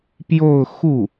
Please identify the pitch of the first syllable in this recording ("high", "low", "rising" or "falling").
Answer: falling